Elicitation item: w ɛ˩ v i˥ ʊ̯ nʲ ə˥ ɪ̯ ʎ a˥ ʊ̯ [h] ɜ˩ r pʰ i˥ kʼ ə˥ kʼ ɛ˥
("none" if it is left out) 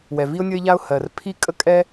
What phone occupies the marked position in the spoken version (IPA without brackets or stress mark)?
h